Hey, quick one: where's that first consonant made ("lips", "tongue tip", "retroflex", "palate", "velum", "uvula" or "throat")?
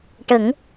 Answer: retroflex